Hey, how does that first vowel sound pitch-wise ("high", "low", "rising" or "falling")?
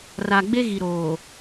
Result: low